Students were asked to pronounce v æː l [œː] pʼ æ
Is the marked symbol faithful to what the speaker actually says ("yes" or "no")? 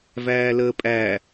no